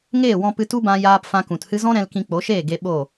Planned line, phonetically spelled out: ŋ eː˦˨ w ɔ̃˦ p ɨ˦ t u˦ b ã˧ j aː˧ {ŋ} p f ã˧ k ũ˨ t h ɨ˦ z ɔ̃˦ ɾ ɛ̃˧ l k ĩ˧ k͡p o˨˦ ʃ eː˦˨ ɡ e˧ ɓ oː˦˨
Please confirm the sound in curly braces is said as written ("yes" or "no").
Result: no